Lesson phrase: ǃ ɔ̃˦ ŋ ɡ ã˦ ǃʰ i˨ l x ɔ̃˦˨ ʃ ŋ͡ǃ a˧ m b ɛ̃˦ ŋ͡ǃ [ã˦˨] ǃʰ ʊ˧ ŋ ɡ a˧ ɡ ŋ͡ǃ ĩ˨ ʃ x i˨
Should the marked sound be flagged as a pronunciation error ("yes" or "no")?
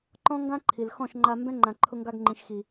yes